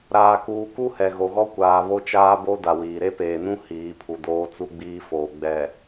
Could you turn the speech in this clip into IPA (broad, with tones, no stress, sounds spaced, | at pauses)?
ɾ aː˨ k uː˨ k u˦ h ɛ˨ ɣ o˨ ɣ ɔ˦ kʷ aː˨ β o˦ t͡ʃ aː˦ b o˦ d a˨ w iː˨ ɾ e˦ p eː˨ n ũ˦ h iː˨˦ pʰ u˨ d oː˦ t͡s u˦ ɡ͡b iː˦ f oː˨ ɡ͡b ɛ˨